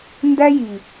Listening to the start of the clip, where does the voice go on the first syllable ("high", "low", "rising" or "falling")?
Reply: high